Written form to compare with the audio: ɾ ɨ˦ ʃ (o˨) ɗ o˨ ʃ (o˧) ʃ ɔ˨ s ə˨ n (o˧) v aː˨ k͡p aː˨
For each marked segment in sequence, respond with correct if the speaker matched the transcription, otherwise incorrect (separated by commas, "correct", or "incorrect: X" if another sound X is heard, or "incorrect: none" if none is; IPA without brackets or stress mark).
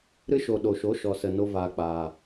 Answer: correct, incorrect: o˨˦, correct